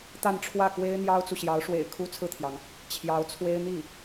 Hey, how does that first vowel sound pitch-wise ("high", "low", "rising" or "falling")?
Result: falling